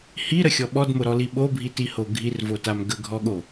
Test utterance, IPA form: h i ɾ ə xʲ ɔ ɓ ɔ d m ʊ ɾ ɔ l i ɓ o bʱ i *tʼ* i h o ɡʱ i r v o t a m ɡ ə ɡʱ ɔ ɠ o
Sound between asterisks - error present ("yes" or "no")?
yes